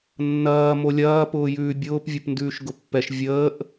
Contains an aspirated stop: no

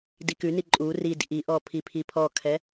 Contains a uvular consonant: no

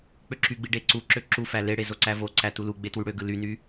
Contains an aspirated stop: no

